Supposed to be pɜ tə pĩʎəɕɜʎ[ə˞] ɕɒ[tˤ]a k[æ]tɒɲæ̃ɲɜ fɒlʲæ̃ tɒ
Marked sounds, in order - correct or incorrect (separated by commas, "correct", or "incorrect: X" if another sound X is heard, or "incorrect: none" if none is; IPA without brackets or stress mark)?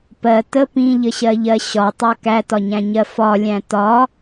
incorrect: ɜ, correct, correct